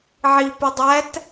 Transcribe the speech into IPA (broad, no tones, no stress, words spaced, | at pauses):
ʕipe dˤæt